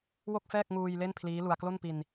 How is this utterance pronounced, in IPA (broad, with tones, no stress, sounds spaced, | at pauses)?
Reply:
w o˥˩ k̚ f ɛː˥˩ k̚ ŋ uː˧ j l e˥˩ n pʰ l iː˦˥ l u˧ a̯ k l o˥˩ n p i˧ n